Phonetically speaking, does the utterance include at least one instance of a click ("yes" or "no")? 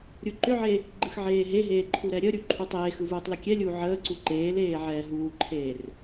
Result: yes